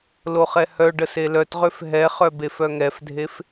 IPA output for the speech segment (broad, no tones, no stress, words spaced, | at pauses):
loχɛhœɖə selœtʁøf ɦɛχœ befœŋɛfdʱef